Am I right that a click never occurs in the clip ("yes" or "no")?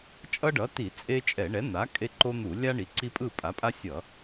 no